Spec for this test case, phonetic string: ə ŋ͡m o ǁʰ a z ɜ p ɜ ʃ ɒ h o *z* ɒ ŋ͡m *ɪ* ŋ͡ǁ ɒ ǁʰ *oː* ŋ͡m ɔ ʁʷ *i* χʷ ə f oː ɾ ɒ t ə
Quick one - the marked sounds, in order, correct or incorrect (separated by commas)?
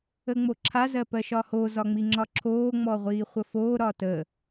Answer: correct, incorrect, correct, incorrect